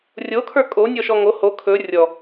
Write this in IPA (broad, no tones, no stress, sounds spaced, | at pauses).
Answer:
rʲ o kʰ ə˞ kʼ o nʲ ɔ ʃ ɔ ŋ o h o kʰ ɵ rʲ ɔ